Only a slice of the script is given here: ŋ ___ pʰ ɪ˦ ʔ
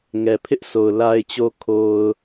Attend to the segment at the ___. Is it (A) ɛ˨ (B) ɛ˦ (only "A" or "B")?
A